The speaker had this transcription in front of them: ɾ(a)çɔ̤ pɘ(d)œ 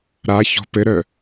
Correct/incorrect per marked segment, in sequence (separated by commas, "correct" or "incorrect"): correct, incorrect